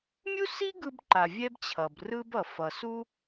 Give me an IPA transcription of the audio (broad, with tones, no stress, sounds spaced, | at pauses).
mʲ u˥ s i˥ ɡ ɯ˧ b ǃ a˩ vʲ ɛ˥ b t͡ɕʰ ʌ˩ b r ɯ˥ b ʌ˩ f ʌ˩ s u˥